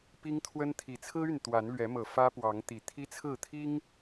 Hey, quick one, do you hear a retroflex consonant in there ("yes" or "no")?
no